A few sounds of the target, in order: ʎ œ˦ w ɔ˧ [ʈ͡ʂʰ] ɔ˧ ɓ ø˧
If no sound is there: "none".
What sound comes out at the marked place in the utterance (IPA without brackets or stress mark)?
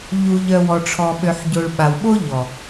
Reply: ʈ͡ʂʰ